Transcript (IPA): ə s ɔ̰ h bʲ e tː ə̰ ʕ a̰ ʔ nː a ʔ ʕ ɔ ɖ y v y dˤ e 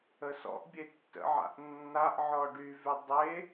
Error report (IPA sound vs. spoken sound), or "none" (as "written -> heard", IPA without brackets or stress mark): h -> ʔ